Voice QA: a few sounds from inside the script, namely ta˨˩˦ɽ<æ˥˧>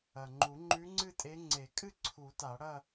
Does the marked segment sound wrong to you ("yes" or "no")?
yes